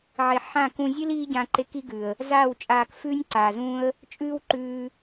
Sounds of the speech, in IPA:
ʕe˨ ħã˦˨kũ˧ zʲɨ˦l iː˦ɟã˧ǃe˧k i˦ɡʉ˨ə̯ | zaː˦˨wt͡ʃʼaː˧k fʉː˦nʲ ǀaː˨zũː˦ə̯ | t͡ʃʼʉː˦wǃʉː˧

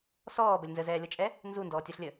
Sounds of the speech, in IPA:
sɔːbəlʲ nzəzɛːlʲɔt͡ʃʼɛ | nzundɔːtʲoɬlʲə

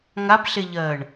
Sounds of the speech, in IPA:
ŋabɬeʎɜːɳ

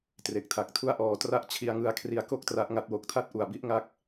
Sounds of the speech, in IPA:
tre˨˩k̚tʰa˨˩k̚tʰu˥˩a̯ʔɔː˧ tra˥˩ʔ t͡ɕʰi˧a̯ŋɯ˧a̯kʰri˧a̯ ko˥˩k̚tra˦˥ʔ ŋa˦˥t̚wo˨˩k̚tʰa˥˩t̚ʔu˨˩a̯ bi˦˥ʔŋa˦˥k̚

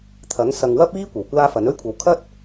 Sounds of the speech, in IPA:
t̪ʰɐ˨˥ŋ sɐ˨ŋwɐ˥p̚iː˥ kʷɐ˨˩wkʷaː˥fɐ˨˥n ɵ˥ɥkʷʰɐ˨˥w kʰɐ˥t̚

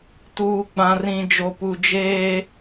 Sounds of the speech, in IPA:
tuː˨ ɡ͡bã˨rĩ˨d͡ʒo˨ pu˨d͡ʒeː˦

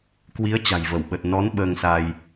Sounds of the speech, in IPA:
kwi˨˦ə̯ t͡ɕa̤˨˩jvə˧˩wɓə˨˩t̚ nɔ˨˦n ɓəː˧ŋsa˧j

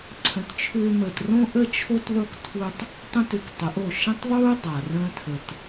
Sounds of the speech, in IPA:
ǀʰə̃˨tt͡ʃʰʏː˧məː˨t rõ˦ʔə˦t͡ʃʰo˦t ðˤu˦ktʰu˦tˤ | tˤũ˦tʏ˧ktˤə˨˦ʔo˦˨ ʃə̃˦tˤðˤuː˦ dˤa˨rə̃ː˦tʰə˧t

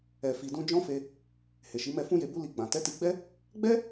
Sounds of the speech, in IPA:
ɛ˨fi˨dũ˧ d͡ʒɔ̃˦fe˧ | he˨ʃi˨˦mɛ˦˨ fũ˧je˨bu˧ li˧ɡ͡bã˨ tɛ˨˦ti˧ɡ͡bɛ˦ | ɡ͡bɛ˦

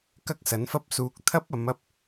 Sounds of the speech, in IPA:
kɐ˥k̚sɐ˨˥nfɐ˥p̚suː˧k̚ t̪ʰɐ˥p̚ɐ˨˧m ɐ˥p̚

